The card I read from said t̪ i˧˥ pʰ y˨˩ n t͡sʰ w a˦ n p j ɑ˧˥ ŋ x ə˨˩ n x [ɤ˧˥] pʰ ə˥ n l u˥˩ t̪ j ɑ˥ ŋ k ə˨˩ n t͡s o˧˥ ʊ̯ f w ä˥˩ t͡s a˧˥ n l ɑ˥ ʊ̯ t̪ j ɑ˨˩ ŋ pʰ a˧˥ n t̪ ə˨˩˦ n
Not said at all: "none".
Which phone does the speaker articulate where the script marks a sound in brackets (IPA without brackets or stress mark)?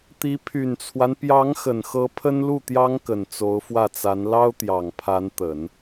ɤ˧˥